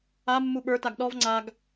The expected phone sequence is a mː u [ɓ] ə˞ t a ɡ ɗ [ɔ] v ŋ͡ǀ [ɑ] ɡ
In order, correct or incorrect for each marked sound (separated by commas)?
correct, correct, incorrect